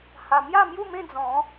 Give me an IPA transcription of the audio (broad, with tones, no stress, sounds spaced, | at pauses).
h a˧ m j a˥˧ m j u˥˧ m ẽ˥˧ d͡z ɔ̃˨˦